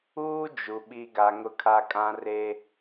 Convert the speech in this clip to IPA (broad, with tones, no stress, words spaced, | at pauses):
uː˦d͡ʒu˨ ɓi˨ɡa˨ ŋʊ˦kʰa˦ kʼã˦ re˦